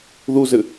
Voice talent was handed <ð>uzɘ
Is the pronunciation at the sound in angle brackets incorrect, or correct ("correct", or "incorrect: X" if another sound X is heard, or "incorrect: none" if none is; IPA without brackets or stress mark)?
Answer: correct